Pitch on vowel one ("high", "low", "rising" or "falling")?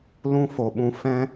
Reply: high